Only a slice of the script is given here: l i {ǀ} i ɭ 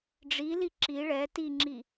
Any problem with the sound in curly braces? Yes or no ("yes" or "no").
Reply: yes